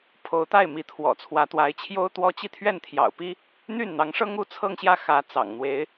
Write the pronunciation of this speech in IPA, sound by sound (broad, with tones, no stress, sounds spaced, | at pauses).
pʰ o˧˥ ʊ̯ t̪ a˥˩ ɪ̯ m i˧˥ t̪ʰ w ɔ̰˨˩ t͡sʰ w ä˧˥ t̪ w a˧˥ ɪ̯ t͡ɕʰ j o˥ ʊ̯ t̪ w ɔ˥ t͡ɕ i˥˧ t̪ʰ ɥ ɛ˥˩ n t̪ʰ j ɑ̰˨˩ ʊ̯ p i˥ | n̪ y˥˩ n n̪ ɑ˧˥ ŋ ʂ ɤ˥ ŋ u˥ t͡sʰ ɤ˥˧ ŋ ɕ j ä˥˩ x ä˧˥ t͡s ɑ̰˨˩ ŋ n̪ w e˧˥ ɪ̯